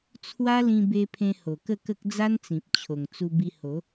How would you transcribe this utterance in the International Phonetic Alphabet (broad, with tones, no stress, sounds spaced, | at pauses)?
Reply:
t͡sʰ w a˦ l ĩ˧ b e˧ pʰ ẽ˧ h o˨˩ k ə˥˧ k ə˦ k̚ d͡z a˦ n t͡s ĩ˨ p̚ t͡ɕʰ o˨˩ ŋ t͡s u˧ b i˧ h o˨˦